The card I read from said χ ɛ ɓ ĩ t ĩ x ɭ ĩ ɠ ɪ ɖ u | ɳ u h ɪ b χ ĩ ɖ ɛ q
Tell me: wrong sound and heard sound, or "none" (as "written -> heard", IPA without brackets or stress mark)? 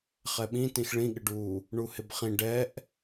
q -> ʔ